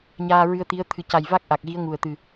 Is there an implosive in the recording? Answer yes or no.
no